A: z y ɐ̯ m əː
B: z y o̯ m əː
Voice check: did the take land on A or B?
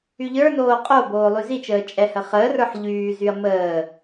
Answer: A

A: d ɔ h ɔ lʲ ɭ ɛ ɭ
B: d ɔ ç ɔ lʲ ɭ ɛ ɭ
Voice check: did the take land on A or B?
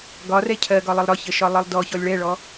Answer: B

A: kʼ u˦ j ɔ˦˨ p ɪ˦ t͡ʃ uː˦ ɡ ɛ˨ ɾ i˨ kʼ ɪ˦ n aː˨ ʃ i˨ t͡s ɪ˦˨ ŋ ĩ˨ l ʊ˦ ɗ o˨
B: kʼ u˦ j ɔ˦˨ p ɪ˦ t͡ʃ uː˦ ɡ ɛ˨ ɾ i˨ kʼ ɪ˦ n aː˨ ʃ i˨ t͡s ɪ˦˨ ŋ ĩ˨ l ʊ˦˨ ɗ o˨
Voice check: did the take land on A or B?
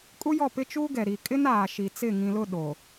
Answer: B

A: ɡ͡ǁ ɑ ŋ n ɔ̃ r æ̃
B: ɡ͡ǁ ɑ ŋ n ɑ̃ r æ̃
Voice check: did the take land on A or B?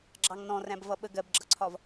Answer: A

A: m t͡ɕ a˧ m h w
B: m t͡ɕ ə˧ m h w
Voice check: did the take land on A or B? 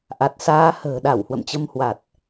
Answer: B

